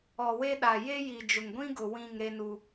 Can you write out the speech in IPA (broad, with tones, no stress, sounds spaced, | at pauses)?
ɔ˨ w e˦ ɗ a˨ j e˦ j i˨ d͡ʒ ʊ˨ ŋ ɡʷ ĩ˦ ɡ ʊ˨ w ĩ˦˨ ŋ ɾ e˦ n u˦